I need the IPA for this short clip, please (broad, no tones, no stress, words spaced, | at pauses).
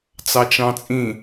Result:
t͡sɑt͡ʃɑ̃t͡sʼĩ